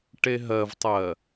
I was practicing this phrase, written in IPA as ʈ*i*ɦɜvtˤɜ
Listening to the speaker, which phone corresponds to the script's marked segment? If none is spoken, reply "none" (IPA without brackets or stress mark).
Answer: e